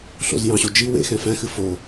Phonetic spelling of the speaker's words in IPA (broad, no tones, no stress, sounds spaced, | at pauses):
ɬ o̰ z j ɑ̃ ɕ o d͡ʒ i w ḛ x ɛ̃ f æ̃ x ɨ f o